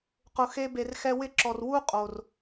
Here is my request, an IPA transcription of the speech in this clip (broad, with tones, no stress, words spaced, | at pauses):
qʊ˨xe˧ be˨rxɛ˧wɪ˦˨ǁɔ˨r wu˦ qʼo˨r